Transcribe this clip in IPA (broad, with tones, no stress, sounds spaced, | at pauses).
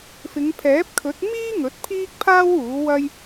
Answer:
f ɪ˨˧ ŋ pʰ ɛː˨˥ p̚ kʰ ɵ˨˥ t̚ m iː˥ ŋ ɵ˨˥ t̚ pʰ iː˥ k̚ pʰ aː˥ w uː˨˥ w ɐ˥ j